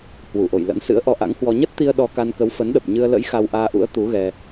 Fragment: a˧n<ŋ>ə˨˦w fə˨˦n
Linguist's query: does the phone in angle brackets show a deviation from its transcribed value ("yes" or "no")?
yes